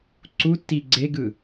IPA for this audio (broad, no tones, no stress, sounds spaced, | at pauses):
ǀ u tː i ɡ͡ǀ e ɡ ɯ